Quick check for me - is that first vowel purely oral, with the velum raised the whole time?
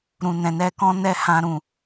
no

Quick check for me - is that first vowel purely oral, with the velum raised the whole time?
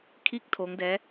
yes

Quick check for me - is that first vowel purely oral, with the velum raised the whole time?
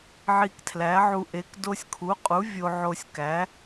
yes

